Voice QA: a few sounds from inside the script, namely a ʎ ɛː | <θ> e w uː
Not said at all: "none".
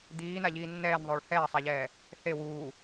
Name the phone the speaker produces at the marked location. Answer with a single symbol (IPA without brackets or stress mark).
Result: θ